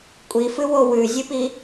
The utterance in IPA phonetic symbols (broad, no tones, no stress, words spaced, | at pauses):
kʷʼifɨwo wʉzʲɨpi